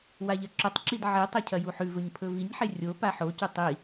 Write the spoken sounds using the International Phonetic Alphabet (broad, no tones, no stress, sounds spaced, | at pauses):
w a ʎ ɐ ǁ ɵ tˤ ǁ i d ʕ i tˤ ɐ cʰ ɐ j u ħ ʉ v ɵ ɲ pʰ ɵ v i ɲ ħ e rʲ o p a ħ o c ʉ tˤ i